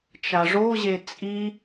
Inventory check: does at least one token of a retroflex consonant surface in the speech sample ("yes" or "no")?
yes